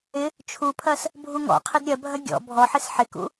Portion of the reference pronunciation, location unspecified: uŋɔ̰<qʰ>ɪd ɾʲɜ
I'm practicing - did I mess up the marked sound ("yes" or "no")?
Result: no